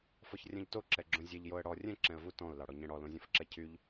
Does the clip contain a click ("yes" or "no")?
yes